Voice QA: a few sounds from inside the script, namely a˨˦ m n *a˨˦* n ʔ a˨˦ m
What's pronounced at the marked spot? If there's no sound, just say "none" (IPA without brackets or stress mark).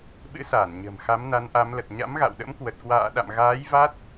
a˨˦